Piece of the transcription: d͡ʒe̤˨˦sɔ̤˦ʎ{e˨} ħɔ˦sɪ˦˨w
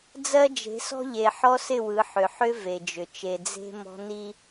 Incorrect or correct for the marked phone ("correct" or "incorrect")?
correct